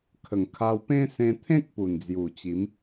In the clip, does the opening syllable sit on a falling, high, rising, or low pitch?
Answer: low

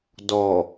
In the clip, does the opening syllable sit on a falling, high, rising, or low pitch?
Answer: low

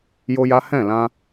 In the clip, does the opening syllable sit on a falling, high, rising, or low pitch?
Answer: high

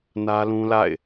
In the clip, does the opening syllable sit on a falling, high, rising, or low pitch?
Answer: high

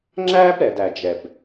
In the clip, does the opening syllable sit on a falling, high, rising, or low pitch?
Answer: high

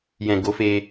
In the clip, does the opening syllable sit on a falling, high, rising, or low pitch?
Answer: low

